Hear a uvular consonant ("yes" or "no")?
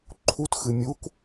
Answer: no